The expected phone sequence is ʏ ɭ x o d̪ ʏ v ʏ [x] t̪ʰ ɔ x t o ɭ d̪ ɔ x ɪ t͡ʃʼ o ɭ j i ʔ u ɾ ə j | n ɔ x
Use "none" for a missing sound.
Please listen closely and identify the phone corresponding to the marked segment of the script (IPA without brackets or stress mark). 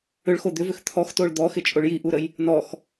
x